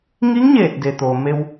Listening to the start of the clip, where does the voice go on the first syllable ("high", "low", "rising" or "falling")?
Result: rising